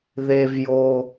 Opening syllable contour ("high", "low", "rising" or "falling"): high